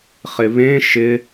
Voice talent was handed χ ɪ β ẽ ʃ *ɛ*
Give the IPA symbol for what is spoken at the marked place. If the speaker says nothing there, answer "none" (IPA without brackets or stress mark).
ɪ